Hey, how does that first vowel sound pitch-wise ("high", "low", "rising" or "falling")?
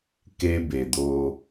high